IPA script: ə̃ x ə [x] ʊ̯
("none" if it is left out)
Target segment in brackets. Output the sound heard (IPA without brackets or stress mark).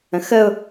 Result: none